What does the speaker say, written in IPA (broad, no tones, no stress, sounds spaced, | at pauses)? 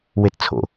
w e t t͡sʰ o̰